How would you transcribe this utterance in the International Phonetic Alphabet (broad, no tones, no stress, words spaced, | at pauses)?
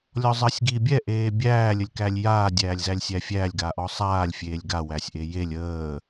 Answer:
lʲɔzˤəːsʲɡiːbʲɛ ʔeːbʲæː lʲəlʲkælʲjaː dʲæːlʲzælʲsʲæfʲælʲ ɡaːʔɔsˤaːlʲ fʲeːlʲɡa wæsʲʔejelʲ əː